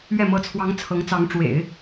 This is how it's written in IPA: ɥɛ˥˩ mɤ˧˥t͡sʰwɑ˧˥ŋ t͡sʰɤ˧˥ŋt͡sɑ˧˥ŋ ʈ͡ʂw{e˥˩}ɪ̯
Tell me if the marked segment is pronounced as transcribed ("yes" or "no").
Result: no